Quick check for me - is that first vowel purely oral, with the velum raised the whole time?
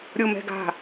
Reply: yes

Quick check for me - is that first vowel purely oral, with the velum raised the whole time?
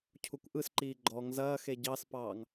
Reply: yes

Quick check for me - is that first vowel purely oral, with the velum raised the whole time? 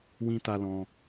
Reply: no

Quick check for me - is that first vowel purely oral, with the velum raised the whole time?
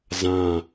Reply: no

